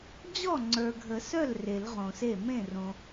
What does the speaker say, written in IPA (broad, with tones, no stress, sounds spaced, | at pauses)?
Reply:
d͡ʑ ɔ˥˩ ŋ͡ǀ ə˞˨ ɡʱ ə˨˩˦ s œ˥˩ l r e˨˩˦ l ʁ õ˨ s e˥˩ m ẽ˥˩ r õ˨